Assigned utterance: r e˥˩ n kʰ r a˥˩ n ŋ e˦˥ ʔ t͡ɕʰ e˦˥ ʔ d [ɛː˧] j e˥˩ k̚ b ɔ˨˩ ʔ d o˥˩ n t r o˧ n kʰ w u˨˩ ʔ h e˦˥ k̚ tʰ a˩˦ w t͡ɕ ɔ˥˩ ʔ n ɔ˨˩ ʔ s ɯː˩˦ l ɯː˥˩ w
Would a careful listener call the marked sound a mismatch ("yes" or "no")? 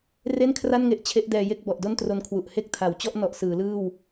no